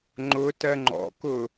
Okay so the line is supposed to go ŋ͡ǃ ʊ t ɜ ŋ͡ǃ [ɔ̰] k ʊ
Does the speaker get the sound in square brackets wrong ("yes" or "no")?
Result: no